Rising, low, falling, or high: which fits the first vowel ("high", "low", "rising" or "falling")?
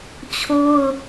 high